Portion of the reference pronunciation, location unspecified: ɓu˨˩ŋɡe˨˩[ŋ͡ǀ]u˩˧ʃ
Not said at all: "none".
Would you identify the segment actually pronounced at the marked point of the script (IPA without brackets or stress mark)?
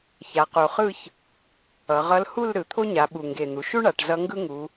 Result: n̪